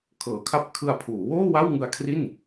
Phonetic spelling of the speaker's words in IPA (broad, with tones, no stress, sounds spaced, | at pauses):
kʰ ɤː˩˦ kʰ a˦˥ p̚ kʰ ɯ˧ a̯ pʰ uː˩˦ w oː˥˩ w a˥˩ w ŋ ɯ˧ a̯ kʰ r i˥˩ n